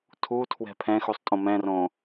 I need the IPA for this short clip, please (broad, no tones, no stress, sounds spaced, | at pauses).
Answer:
tʰ u tʰ w ɛ̤ pʰ ɛ̃ x u sˤ tʼ õ m ɛ̃ r õ